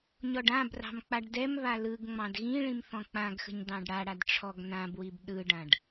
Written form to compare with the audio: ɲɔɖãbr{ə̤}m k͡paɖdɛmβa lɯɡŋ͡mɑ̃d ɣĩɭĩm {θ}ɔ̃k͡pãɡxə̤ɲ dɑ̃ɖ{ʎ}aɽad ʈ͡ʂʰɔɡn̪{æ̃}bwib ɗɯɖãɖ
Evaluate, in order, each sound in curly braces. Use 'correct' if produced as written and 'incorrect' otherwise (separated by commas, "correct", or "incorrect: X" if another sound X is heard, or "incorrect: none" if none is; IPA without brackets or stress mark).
incorrect: ɑ̤, correct, incorrect: ɽ, incorrect: ã